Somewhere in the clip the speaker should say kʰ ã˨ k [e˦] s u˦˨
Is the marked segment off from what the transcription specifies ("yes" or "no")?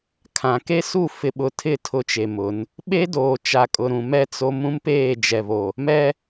no